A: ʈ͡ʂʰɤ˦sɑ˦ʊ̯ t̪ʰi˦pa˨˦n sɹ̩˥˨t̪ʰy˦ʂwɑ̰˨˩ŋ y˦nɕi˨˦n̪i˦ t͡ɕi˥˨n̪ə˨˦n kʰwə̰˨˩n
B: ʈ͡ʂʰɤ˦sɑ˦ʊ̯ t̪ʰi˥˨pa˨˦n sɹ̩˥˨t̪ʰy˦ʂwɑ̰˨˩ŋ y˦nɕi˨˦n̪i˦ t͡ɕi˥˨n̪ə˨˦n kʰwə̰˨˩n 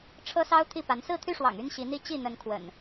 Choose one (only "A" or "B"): B